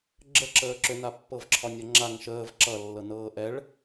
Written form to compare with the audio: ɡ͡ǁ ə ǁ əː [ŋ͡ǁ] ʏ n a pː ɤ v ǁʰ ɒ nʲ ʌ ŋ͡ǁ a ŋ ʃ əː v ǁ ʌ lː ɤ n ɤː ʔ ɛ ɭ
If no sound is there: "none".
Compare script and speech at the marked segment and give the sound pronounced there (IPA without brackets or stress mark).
ǁ